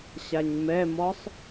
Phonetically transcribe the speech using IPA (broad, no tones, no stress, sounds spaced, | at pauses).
ɕ a ɲ m ɛ m ɔ sˤ